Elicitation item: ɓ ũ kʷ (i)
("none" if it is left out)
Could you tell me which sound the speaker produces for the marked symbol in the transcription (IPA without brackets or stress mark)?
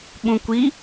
i